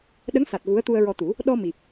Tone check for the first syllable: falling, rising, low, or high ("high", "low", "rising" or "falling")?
rising